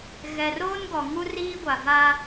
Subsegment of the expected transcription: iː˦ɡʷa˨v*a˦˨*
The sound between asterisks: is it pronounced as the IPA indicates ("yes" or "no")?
no